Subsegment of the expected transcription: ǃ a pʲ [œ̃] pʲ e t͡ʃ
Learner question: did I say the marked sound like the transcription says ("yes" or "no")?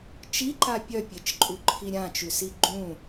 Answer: no